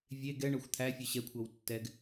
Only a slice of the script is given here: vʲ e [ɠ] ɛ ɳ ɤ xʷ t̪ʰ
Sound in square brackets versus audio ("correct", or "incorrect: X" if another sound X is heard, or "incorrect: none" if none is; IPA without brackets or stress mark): incorrect: ɡ